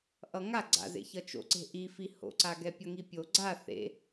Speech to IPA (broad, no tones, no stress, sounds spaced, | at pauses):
ʔ ʌ ŋ a ɡ͡ǀ a̰ z ḛ ç ʌ t͡ʃ o̰ ǀ e̤ ʔ i f i h o̰ ǀ a ɡ ɛ pʲ ʌ ŋ i pʲ o ɡ͡ǀ a θ ḛ